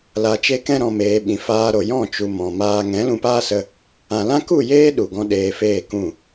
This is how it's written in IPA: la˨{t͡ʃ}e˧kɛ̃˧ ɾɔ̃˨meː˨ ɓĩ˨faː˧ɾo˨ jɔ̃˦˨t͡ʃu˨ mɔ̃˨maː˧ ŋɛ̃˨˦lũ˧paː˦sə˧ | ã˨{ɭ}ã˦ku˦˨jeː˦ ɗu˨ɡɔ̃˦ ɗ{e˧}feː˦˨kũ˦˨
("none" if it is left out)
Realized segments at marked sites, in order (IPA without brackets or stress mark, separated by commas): t͡ʃ, l, eː˧